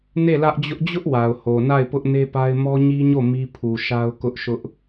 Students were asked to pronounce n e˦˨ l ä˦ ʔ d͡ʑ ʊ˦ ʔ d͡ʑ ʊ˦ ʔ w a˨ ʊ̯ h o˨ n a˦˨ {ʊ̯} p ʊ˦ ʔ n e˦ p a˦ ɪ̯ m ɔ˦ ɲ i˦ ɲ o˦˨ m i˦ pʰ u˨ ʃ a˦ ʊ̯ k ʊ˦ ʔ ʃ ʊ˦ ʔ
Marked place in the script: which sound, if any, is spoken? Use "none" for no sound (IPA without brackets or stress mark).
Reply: ɪ̯